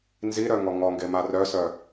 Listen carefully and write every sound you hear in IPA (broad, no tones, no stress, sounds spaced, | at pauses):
n z i ɾ œ ŋ ɔ ŋ ɔ ŋ ɡ e m a r œ s œ